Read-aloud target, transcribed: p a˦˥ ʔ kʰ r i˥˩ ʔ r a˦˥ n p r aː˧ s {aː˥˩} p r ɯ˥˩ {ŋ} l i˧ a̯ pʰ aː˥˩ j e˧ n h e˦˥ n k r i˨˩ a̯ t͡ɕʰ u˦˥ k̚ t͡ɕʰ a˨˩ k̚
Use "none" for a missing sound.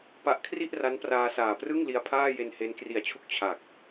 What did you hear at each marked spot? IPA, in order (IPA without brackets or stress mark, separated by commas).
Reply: aː˨˩, ŋ